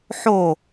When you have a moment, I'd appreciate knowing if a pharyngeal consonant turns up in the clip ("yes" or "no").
yes